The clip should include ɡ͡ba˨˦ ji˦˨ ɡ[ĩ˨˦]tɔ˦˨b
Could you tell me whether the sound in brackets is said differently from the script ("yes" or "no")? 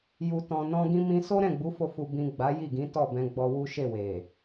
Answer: no